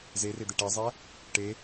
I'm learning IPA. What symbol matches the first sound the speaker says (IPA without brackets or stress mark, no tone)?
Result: z